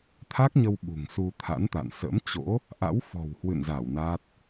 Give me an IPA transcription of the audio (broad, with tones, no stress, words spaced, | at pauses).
t̪ʰa˦˥k̚ɲə˧w ɓṳ˨˩ŋsu˧t̪ʰa̰˧˥nt̪a̰˧˨n sə̰˧˥mt͡ɕo̰˧˥ | ʔa̰˧˥wfɔ̤˨˩whwɨ̰˧˨nza˧˩w na˦˥t̚